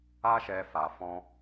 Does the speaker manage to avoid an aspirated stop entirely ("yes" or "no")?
yes